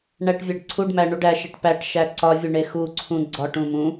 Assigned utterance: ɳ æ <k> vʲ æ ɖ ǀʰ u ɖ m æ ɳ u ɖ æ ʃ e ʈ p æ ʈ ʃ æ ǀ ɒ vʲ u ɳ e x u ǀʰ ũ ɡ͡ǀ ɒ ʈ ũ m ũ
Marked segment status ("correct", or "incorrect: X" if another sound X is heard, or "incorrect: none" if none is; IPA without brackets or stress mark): incorrect: ʈ